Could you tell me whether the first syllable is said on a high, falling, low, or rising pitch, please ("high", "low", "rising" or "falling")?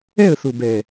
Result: falling